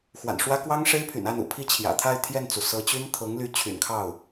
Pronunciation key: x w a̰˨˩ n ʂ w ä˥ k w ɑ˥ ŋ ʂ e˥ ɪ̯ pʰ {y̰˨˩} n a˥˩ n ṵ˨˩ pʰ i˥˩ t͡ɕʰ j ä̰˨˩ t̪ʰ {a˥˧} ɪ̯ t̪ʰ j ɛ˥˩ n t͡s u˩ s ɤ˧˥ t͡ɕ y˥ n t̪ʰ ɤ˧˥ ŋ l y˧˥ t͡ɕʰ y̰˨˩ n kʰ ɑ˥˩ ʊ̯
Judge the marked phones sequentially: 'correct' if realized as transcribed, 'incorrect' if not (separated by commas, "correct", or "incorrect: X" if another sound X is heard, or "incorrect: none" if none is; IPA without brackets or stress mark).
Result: correct, correct